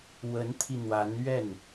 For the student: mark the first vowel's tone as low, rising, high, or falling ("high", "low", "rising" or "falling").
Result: rising